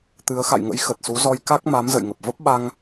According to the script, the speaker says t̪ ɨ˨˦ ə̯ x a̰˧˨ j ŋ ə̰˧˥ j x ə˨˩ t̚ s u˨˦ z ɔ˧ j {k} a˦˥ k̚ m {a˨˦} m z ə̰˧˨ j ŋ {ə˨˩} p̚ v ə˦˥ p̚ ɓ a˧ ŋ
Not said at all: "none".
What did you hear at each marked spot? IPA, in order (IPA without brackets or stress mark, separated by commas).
k, a˨˦, ə˨˩